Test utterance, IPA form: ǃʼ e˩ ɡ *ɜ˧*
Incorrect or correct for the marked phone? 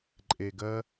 correct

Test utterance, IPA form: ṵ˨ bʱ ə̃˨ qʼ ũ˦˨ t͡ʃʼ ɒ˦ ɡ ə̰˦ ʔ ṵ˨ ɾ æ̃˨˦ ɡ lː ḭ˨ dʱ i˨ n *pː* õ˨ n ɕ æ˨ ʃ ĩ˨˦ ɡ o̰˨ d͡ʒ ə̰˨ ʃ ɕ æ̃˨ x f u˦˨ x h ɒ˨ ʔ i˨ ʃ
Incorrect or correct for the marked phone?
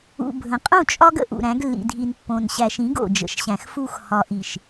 correct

